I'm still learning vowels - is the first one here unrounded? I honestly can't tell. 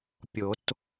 no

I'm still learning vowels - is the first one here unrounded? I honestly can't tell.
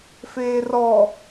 yes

